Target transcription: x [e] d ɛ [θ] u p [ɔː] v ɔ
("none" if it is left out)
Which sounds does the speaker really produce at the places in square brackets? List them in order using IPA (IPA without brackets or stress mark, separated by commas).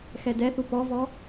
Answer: ɛ, θ, ɔ